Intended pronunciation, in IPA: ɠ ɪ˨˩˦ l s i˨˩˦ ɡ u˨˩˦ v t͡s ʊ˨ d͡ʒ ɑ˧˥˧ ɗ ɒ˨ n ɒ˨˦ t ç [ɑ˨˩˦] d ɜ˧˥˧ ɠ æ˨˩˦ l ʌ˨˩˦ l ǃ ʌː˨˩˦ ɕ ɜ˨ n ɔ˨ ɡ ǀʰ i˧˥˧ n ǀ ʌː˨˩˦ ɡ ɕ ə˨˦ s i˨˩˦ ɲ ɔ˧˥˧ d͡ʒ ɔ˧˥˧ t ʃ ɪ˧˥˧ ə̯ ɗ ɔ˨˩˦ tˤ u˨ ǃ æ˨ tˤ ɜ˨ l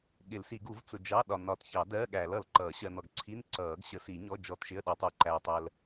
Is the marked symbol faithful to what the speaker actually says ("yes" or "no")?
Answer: yes